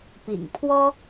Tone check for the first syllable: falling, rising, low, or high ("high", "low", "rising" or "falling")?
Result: low